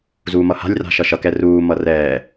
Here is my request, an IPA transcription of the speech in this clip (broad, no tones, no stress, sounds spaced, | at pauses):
z uː m ʌ h a̤ lʲ r a̤ ʃ ʌ ʃ ʌ k ɛ r uː m ʌ r ɛː